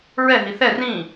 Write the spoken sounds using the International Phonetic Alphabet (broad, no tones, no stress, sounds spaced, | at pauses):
ɹ ɛ ɦ i θ ɛ r ĩ